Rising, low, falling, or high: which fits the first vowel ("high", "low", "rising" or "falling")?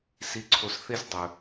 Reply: low